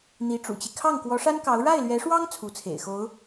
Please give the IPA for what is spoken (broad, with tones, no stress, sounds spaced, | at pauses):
n̪ i˧˥ ʈ͡ʂ ṵ˨˩ t͡ɕ i˦ kʰ ɑ˥˩ ŋ k w ɔ˧˥ ʂ a˥ n k ɑ˧˥ ʊ̯ ɻ a˥˩ ɪ̯ l ɥ ɛ˧˥ ʂ w ɑ˥ ŋ t͡sʰ u˧˥ t͡sʰ ḛ˨˩ ɪ̯ x o˧˥ ʊ̯